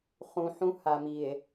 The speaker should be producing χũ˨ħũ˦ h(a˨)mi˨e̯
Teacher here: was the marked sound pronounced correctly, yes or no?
yes